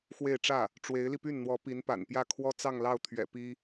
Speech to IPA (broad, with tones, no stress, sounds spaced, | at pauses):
x w e˥˧ ɪ̯ ʈ͡ʂ ä˥˩ | ʈ͡ʂ w e˧˥ ɪ̯ l i˧ p y˥˩ n n̪ w ɔ˧˥ p i˧˥ n p a̰˨˩ n p j ä˥˩ kʰ w ɔ˥ t͡s ɑ˥˧ ŋ l ɑ˥˩ ʊ̯ t̪ʰ ɥ ɛ̰˨˩ p i˥